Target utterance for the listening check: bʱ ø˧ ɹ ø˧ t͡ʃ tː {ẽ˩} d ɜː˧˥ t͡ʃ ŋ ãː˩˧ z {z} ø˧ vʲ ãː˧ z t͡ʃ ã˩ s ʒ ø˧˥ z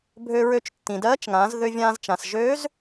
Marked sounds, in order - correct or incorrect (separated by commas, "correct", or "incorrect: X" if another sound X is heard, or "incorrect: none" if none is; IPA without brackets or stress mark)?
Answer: incorrect: ĩ˩, incorrect: ð